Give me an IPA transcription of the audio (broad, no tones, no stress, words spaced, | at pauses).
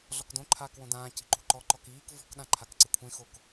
ɮɔkdõǃʰaːkwõ dãː ci̤ǃṳǃɔ ǃɔkiːk vɔ̤kɗã ǃʰakǀɪkʷʰẽxok